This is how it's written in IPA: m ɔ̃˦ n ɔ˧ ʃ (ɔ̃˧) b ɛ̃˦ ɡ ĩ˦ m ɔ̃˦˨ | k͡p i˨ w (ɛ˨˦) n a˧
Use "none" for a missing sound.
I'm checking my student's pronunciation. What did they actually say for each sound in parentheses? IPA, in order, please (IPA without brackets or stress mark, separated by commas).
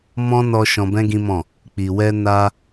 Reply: ɔ̃˧, ɛ˧